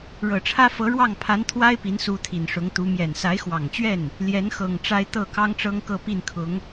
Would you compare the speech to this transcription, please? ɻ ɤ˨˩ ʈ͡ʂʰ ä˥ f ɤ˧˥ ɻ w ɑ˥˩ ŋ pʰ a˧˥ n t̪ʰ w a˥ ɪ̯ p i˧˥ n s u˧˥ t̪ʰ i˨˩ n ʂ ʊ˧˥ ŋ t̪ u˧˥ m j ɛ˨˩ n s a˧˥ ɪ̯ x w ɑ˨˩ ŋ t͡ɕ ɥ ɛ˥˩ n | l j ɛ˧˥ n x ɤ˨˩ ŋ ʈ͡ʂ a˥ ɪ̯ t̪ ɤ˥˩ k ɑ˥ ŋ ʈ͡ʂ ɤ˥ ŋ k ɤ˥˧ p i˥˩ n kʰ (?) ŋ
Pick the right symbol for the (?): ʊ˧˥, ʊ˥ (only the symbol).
ʊ˧˥